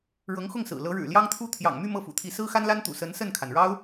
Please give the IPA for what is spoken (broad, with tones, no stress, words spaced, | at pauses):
ɻɤ˧˥ŋxʊ˥˩ŋsɹ̩˨˩ lɤ˧˥ɻɻ̩˨˩ljɑ˥ŋt̪ʰu˥ t̪ʰjɑ̰˨˩ŋmy˥˧ mɤ˥˩fṵ˨˩t̪ʰi˧˥ sɹ̩˥xa˥nla˥nt̪ṵ˨˩ sə˧˥nsə˥˩nkʰa˩nɻɑ˥ʊ̯